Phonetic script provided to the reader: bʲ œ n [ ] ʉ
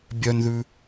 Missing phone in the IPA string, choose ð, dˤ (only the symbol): ð